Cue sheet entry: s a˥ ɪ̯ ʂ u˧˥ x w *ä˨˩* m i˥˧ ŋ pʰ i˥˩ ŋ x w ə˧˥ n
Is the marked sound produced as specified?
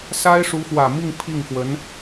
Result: yes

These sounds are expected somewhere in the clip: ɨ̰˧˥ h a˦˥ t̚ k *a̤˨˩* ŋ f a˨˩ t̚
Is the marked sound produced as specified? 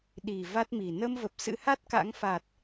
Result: no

